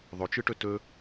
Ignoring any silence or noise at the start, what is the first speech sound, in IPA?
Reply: ðˤ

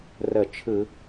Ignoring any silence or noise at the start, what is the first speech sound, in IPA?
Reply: r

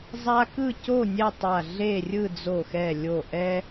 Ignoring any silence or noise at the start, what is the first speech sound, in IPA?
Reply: zˤ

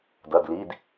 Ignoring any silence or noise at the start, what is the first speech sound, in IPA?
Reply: d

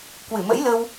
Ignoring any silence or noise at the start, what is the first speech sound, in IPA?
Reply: k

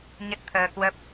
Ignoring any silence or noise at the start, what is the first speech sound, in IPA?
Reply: ɲ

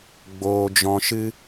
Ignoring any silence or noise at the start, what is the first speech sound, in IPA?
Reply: ɡ͡b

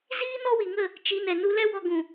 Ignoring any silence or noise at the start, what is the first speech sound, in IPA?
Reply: z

